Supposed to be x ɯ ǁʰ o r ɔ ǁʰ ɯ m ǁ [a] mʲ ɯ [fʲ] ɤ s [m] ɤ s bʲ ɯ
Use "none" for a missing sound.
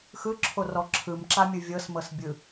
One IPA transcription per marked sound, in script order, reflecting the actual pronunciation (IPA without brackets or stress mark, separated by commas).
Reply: a, vʲ, m